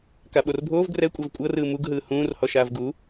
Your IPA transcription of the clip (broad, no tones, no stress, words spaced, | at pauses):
kaɓorbʱoːv ɡrɛkʷʼav kʷʼɤrɯː muɡɦɯː hũːrhɔ ʃaːvɡu